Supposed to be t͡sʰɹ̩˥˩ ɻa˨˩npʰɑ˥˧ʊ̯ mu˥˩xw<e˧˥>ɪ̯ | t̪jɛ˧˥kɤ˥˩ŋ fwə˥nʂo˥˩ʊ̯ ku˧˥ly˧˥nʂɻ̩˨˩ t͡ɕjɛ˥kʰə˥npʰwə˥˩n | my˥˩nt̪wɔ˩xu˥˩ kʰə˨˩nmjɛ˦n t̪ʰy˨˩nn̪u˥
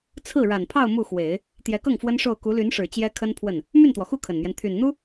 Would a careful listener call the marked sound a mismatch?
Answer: yes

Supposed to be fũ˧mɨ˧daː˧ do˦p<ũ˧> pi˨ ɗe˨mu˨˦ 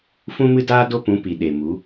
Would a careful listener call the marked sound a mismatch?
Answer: yes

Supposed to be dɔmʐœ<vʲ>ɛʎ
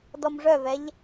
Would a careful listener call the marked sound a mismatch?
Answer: yes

